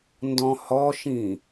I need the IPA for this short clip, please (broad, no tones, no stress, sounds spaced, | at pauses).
n d ɔ̃ h ɔ ʃ ĩ